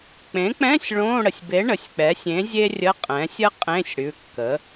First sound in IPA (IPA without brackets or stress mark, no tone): k͡p